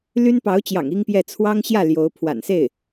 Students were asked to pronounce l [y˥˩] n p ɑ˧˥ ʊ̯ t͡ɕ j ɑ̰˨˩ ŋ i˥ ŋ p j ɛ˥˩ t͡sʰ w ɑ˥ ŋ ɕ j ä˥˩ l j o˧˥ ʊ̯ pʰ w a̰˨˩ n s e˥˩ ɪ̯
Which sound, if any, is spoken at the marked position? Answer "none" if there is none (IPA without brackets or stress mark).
y˥